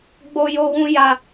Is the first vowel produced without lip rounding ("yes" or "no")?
no